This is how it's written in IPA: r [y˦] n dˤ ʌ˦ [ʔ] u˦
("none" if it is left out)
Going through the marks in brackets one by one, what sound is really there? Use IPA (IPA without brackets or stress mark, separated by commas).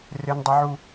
e˦, ʕ